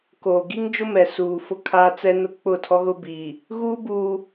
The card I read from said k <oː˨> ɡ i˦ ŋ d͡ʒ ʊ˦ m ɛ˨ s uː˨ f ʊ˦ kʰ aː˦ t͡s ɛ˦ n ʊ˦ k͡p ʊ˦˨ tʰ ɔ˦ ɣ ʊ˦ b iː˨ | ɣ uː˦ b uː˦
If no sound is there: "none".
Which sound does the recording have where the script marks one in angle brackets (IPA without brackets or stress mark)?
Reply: oː˨